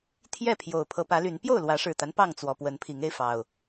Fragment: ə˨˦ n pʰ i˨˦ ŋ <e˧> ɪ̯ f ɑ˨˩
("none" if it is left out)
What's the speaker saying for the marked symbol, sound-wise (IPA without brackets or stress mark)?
e˧